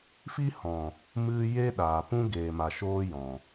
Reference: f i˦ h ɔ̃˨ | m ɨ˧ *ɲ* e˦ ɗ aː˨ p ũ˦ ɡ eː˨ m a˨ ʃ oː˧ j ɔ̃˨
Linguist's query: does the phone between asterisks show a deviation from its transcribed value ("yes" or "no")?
yes